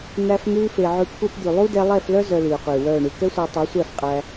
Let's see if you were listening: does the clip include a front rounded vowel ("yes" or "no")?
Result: yes